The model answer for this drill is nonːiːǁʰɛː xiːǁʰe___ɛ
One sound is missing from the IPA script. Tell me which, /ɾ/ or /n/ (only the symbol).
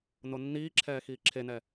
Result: n